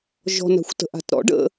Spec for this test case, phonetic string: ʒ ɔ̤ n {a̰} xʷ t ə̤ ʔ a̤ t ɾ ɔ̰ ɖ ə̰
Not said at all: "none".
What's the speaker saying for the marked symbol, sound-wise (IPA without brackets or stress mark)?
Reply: a̤